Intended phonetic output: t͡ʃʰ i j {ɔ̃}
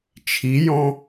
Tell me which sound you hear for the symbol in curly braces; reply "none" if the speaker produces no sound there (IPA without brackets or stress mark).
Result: ɔ̃